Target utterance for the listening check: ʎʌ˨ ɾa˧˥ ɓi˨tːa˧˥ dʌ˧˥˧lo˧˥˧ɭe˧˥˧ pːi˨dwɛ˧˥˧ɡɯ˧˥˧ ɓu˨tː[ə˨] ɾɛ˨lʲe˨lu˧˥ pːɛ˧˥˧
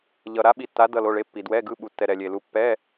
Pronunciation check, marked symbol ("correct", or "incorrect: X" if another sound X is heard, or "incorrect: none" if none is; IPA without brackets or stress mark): incorrect: ɛ˨